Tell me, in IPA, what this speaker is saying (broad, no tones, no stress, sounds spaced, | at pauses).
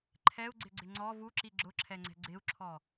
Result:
ǃʰ ɛ u̯ ɡ͡ǀ ɪ ɡ͡ǀ ɪ ŋ͡ǀ ɔ v u ǁ i ɡ͡ǁ ʊ ǁʰ ɛ ŋ͡ǀ ɛ̤ ɡ͡ǀ ɪ u̯ ǁʰ ɔ